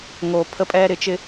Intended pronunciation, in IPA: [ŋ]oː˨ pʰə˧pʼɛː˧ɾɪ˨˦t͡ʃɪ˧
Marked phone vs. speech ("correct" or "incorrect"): correct